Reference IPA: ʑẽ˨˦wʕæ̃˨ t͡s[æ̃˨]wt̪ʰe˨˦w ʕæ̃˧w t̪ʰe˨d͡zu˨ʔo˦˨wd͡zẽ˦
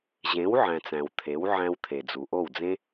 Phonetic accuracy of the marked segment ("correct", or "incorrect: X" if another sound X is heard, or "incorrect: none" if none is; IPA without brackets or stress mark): correct